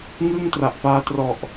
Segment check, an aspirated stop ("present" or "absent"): absent